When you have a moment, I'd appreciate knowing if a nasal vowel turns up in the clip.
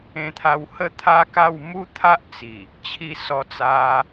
yes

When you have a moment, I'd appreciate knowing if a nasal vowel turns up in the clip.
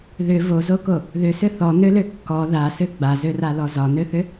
no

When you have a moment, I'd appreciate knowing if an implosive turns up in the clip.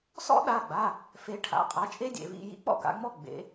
yes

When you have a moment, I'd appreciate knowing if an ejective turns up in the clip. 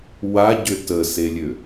no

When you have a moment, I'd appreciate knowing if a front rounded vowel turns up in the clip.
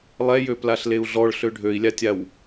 yes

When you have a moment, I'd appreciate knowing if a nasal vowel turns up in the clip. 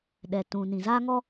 yes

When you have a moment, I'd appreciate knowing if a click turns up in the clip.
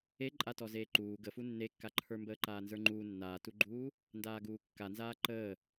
yes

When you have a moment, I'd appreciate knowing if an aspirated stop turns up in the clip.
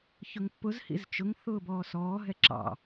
no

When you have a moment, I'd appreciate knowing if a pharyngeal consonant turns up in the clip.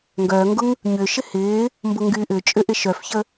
no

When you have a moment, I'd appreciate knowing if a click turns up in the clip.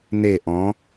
no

